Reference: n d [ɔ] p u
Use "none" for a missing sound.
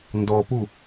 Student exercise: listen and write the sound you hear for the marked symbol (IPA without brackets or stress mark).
ɔ